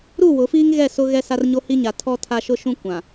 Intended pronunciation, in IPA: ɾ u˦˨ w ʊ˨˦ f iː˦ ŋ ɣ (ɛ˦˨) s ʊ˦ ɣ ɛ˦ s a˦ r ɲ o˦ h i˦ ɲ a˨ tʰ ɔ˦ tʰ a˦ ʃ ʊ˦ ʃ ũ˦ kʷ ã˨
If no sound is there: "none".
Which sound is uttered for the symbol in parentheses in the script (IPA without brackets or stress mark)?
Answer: ɛ˦˨